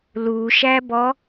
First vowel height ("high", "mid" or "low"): high